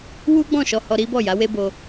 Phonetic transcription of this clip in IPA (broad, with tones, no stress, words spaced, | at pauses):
wu˦ɡ͡bɔ̃˦˨ ʃɔ˧hɔ˧ɾi˦bɔ˦˨ ja˨˦we˦bo˧